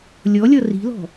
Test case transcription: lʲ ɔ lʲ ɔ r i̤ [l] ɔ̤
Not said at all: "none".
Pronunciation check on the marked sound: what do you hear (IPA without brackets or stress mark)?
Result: l